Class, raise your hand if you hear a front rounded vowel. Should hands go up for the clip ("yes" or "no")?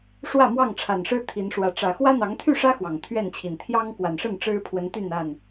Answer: yes